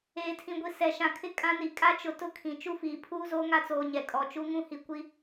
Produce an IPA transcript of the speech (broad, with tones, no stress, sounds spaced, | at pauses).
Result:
eː˨ tʰ ĩ˨ ɡʷ i˨ s ɛ˨ ʃ ã˨ kʰ ɪ˦ kʼ ã˦ n i˨ kʼ a˦ t͡ʃ ʊ˨ t ʊ˦ kʰ ĩ˨ t͡ʃ u˦ f iː˨ pʰ uː˦ z oː˦ ŋ a˦ t͡s oː˨ ɲ ɛ˨ kʼ ɔ˨ t͡ʃ u˦ ŋ ũ˦ h i˨ kʷ i˦